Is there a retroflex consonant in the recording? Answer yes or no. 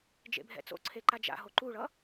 yes